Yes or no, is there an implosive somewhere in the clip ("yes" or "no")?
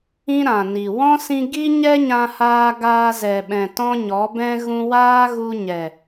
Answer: yes